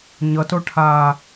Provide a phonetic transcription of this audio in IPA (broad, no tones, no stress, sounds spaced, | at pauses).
ɲ ʌ t o ʈʰ aː